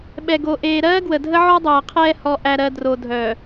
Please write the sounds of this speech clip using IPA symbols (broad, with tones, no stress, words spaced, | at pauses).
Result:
ɓɛ˨ɡo˨ ʔeː˨ɾɜː˦ɡwə˨dʱə˦ ʕɔ˦dˤɜː˨qʰɛː˦ hɔ˨ʔæ˨ɾɜ˨ dro˨dʱœ˨